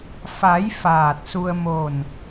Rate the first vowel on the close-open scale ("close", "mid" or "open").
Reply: open